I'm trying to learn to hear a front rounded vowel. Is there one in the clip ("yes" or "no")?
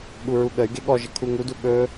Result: yes